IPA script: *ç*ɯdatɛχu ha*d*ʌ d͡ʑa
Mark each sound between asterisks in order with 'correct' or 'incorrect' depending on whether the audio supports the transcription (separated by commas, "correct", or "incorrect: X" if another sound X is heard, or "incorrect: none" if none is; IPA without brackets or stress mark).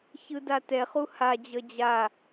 correct, incorrect: d͡ʑ